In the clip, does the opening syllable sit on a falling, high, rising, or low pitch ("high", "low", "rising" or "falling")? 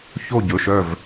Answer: falling